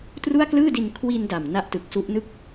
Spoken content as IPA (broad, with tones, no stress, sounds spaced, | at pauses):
t r u˥˩ a̯ k l ɯː˥˩ d i˧ n kʰ w i˧ n d a˨˩ m n a˦˥ ʔ t ɯ˨˩ k̚ s u˦˥ ʔ n ɯ˥˩ k̚